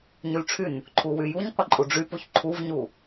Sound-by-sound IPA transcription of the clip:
ɲylʈ͡ʂʰyn | ǃʰuwyjuɲ qʷəǃʼuɖ͡ʐypuç ǃʰuvɲu

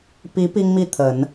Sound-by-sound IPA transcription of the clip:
pi˧˥ pi˥ŋmi˥˩ t̪ʰə˨˩˦n

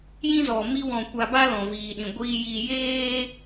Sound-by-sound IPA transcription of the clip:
jĩ˦zɔ˨mi˦wɔ̃˧ kʷa˧ba˦ lɔ̃˨viː˨ɗĩ˨ ɡʷiː˧ji˧ jeː˦

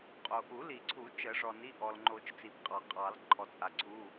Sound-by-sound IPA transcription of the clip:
qʼo˩ʔu˨˩˦li˨˩˦ǀʰu˨˩˦ t͡ʃə˨˩˦ʐɔ˩ni˩˧˩ ʔɔ˩lŋ͡ǃo˨˩˦t͡ʃ t͡si˩bqʼɑ˨˩˦qʼɑ˨˩˦l ǃʰɔ˩t͡sʼa˩ǀʰu˩˧˩

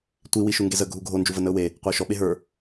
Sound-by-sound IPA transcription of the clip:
tʷi wiʃuŋɡezə ɡʱuɡʱo nd͡ʒuvənəʊ̯we | qʷəʊ̯ʃɔ ɓeɦə˞

